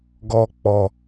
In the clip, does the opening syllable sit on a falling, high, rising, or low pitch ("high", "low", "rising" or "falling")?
low